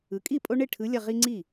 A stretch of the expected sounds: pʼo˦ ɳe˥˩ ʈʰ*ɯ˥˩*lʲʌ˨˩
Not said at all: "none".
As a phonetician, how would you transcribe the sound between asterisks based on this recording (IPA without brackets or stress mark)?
ɯ˩˧